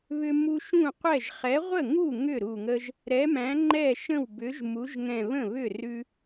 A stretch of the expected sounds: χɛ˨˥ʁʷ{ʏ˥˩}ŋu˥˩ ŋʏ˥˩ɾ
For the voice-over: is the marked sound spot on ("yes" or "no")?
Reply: no